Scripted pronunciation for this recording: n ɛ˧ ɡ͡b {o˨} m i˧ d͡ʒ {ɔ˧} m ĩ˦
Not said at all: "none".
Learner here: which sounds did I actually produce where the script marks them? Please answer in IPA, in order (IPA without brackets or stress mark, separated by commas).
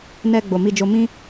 o˨, o˧